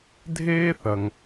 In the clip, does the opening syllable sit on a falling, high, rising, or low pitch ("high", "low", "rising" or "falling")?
high